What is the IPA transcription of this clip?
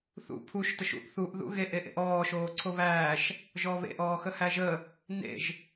θ ṵ pʰ u ʃ t ə ʃ ṵ ʔ θ u ʔ ð ṵ ɣ e ʔ e ʔ ḛ ʔ ɔː ʃ oː ǀʰ o β æː ʃ | ʒ ɔ β ḛ ʔ ɔː x ə h æ ʒ ə | n ḛ ʒ

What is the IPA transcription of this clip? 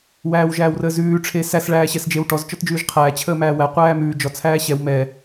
w æː w ʒ æː w r əː z ʉː ʈ͡ʂʰ e s æ s ɭ æː ɕ ɛ s d͡ʒ e w ʈ ɔ z t͡ʃ ɔ t d͡ʒ ʉː ʒ qʰ æː t͡ɕʰ əː m æː w æ qʷ æː m ʉː d͡ʒ ɔ t͡sʰ æː ɕ ɛ w m ɛ

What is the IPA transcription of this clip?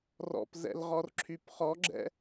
r ɔ̰ p z ɛ̰ l ʁ ɔ r ǁʰ y p χ ɔ ɡ͡ǁ ɛ̰

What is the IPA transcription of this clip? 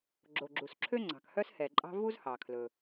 ɡ͡ǁ o˩ ɡ͡ǁ u˩ s ǁʰ ø˥ ŋ͡ǀ ɑ̤˩ k h œ˥ s h ɛ˩ ǃʼ ɑ̤˥ v u˥ z h ɑ˩ kʰ l ɵ˩

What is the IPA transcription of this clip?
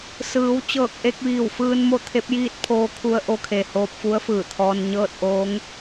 s ɯː˩˧ w t͡ɕ ɤː˧˩ k̚ ʔ e˧ k̚ ʋ iː˧˩ w f ɯː˧ n m o˥˨ t̪ʰ e˧˥ p̚ j iː˥˨ t̚ pʰ oː˧ kʰ u˧ ə̯ ʔ o˧ kʰ e˩ h oː˧ p̚ f u˧˥ ə̯ f ɯː˧˩ t̪ʰ ɔː˧ n ɲ ɤː˥˨ t̚ ʔ oː˧˥ ŋ

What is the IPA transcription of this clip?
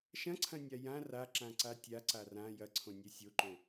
ʃ ɐ̃ ǀʰ ɐ̃ nʲ a j ã r a ǁ ã ǀ a tʲ a ǀ a r ã j ɐ ǀʰ õ nʲ ɛ sʲ o ǃ õ

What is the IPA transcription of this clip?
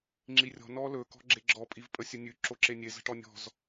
ŋ͡ǁ i rʲ ɔ̤ n ɔ l ɵ k ɔ̤ ɡ͡ǁ e ɡ͡ǁ ɔ pʼ i v pʼ ə sʲ ə nʲ ʉ ǁ o ǁ e nʲ e z ə̤ ʈ ɔ nʲ ɔ̤ z

